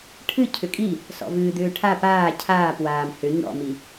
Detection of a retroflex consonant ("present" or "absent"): present